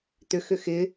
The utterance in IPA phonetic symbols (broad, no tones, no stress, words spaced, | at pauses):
t̪ʏxʏ xɪ